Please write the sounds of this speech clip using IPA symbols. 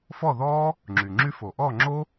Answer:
f ɔ˥˩ ð ɔː˦˥ | ŋ͡ǁ yː˩ ŋ͡ǁ y˦˥ f o˩ ʔ ɔː˥˩ ŋ͡ǁ o˦˥

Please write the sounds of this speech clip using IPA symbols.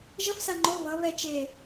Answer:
ʒ ʌ f s a ŋ͡ǃ o β ʌ β ɛ t͡ʃ e

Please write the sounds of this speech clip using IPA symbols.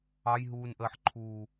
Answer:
ɑ j ɦ uː n ʔ əː ħ ǃʰ uː

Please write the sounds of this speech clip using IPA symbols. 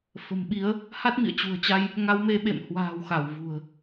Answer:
f ə̤˨˩ m ɓ i˨˦ ə̯ | h a˦˥ t̚ m ḭ˧˨ ə̯ t͡ɕ ṳ˨˩ ə̯ t͡ɕ a˧ j | ŋ a˨˦ w m e˨˦ ɓ ḛ˧˨ m h w a̤ː˨˩ w x a˧˩ w v ṳ˨˩ ə̯

